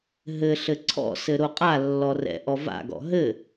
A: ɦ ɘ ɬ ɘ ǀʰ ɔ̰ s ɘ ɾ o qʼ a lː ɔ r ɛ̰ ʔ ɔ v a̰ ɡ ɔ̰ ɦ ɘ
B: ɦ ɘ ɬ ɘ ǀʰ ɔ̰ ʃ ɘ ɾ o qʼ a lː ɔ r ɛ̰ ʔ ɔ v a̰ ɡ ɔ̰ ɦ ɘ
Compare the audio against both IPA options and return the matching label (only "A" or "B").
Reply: A